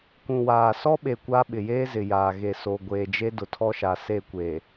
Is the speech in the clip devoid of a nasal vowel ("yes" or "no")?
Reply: no